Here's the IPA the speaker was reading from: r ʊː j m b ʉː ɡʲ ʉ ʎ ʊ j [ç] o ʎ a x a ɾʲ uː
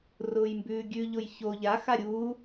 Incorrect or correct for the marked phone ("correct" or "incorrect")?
correct